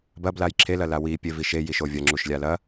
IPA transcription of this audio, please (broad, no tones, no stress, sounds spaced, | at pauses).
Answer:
b ɐ b l a j ǁʰ e l ɐ l a w i pʲ e v i ʃ e j i ʃ o vʲ ɐ ŋ͡ǁ u ʃ lʲ a l ɐ